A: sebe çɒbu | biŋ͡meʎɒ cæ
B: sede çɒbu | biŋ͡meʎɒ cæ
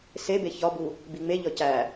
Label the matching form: A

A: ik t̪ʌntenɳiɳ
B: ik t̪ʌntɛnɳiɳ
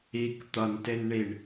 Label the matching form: A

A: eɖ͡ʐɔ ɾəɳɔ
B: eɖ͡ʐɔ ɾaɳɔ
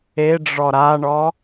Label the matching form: B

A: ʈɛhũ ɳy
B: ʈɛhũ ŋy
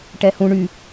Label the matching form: A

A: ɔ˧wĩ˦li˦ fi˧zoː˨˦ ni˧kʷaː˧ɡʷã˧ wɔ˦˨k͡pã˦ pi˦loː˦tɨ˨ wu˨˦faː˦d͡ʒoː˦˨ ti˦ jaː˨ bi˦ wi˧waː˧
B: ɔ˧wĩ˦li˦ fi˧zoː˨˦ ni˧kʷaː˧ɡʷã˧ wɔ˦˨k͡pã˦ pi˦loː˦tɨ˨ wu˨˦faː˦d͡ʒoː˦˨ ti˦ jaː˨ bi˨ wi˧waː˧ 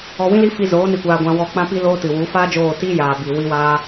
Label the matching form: B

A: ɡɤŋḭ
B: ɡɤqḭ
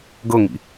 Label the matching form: A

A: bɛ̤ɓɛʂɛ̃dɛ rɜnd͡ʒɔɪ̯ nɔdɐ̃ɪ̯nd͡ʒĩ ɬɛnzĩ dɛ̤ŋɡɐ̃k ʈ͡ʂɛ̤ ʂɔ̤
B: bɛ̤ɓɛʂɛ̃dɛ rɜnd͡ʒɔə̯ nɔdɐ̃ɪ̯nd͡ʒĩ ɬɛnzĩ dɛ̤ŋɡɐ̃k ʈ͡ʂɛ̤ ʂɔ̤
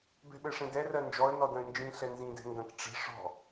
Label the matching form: B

